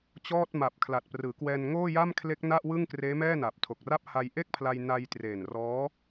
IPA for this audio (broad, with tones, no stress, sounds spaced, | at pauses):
t͡ɕ ɔː˥˩ t̚ m a˨˩ p̚ kʰ l a˨˩ t̚ p r ɯː˩˦ k w ɛː˧ n ŋ oː˥˩ j a˥˩ m kʰ l e˦˥ k̚ n a˥˩ ʔ w ɯ˥˩ ŋ k r eː˦˥ m ɛː˥˩ n a˨˩ p̚ tʰ o˨˩ k̚ r a˦˥ p̚ h a˧ j ʔ e˥˩ k̚ pʰ l a˧ j n a˧ j t r eː˨˩ n r ɔː˦˥